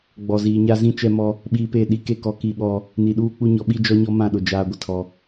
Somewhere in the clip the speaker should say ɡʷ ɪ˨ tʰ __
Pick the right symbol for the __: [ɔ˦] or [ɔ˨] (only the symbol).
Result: ɔ˨